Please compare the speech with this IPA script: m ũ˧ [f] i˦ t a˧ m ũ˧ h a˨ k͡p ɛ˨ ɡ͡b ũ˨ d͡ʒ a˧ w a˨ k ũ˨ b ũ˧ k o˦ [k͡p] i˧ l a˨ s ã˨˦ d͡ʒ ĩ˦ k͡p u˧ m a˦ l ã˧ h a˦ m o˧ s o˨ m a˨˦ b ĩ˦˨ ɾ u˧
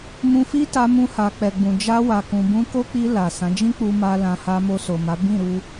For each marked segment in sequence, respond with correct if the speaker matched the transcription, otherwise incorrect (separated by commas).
correct, correct